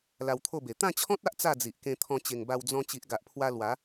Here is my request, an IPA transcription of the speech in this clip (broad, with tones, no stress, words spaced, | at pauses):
la˧wt̪ʰo˥˧be˨˩ t̪ã˥˧t͡ɕʰɔ̃˦t̚a˦ʔ t͡sa˥˧d͡zi˨ʔkẽ˧t̪ʰɔ̃˧ t͡ɕe˨˩ŋba˧w d͡zɔ̃˧ t͡ɕi˨ʔɡa˨ʔpʰwa˧ lwa˨˦